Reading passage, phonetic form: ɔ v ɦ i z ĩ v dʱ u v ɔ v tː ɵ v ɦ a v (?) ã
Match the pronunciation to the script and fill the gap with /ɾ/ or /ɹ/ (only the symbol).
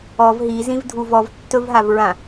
ɹ